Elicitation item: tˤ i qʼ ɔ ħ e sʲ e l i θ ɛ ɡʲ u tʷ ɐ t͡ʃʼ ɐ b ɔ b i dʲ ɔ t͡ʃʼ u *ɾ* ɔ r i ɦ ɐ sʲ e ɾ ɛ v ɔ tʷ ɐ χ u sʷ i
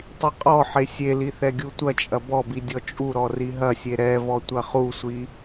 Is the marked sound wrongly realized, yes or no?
no